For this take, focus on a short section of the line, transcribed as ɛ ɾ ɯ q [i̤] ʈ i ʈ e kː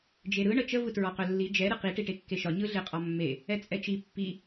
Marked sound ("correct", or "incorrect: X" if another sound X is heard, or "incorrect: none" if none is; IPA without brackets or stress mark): incorrect: i